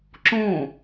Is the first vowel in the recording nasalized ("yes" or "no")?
yes